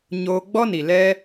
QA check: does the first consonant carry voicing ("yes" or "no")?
yes